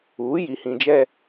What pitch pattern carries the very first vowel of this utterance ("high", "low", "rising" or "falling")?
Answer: rising